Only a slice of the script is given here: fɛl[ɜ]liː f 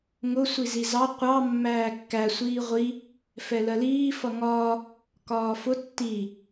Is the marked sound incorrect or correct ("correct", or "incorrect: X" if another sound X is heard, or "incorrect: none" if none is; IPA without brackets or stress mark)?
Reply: correct